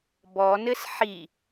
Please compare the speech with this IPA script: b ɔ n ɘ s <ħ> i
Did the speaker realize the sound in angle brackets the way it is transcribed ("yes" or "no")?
yes